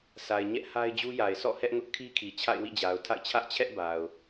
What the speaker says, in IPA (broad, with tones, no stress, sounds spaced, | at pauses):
sʰ a˨ ɪ̯ ɲ ɛ˦ ʔ h a˦ ɪ̯ d͡ʑ u˦ j a˨ ɪ̯ sʰ ɔ̰˦˨ h ɛ˦ ʔ ŋ ʊ˦ ʔ kʰ i˦ kʰ i˨ t͡ɕʰ a̰˦˨ ɪ̯ w ḭ˦˨ d͡ʑ a˨ ʊ̯ tʰ a̰˦˨ ɪ̯ t͡ɕʰ ä˦ ʔ t͡ɕʰ ɛ˦ ʔ b a˨ ʊ̯